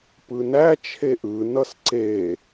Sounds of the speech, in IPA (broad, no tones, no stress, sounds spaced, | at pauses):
p ɯ n æ t͡ʃʰ e ʔ ɯ n ʌ s ǀ e